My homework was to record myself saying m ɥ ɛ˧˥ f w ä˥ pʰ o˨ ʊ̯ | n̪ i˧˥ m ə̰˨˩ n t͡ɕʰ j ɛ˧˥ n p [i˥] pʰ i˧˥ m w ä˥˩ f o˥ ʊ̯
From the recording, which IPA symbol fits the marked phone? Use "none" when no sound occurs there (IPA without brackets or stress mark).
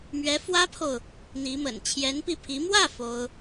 i˥˩